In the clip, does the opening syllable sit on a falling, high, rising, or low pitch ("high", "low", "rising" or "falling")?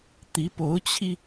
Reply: rising